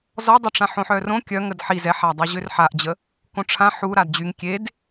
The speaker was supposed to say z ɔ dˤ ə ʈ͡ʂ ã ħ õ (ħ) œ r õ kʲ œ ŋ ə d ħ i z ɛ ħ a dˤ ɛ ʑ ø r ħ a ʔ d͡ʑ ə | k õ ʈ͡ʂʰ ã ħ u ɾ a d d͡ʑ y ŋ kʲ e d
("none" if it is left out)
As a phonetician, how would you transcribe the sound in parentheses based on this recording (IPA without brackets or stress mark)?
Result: ħ